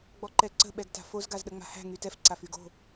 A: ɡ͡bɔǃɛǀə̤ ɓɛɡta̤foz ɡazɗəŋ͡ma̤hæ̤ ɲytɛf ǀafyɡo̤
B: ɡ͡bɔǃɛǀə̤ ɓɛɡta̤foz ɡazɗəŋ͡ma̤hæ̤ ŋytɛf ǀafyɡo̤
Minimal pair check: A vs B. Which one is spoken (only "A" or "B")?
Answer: B